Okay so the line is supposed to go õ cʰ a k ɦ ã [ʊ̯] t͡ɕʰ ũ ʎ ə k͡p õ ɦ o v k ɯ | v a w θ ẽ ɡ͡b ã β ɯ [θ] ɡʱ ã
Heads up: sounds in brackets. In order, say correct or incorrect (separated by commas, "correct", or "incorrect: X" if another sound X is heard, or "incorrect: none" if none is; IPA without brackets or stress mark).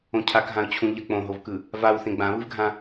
correct, incorrect: v